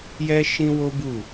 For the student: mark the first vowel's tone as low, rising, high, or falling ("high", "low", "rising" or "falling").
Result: high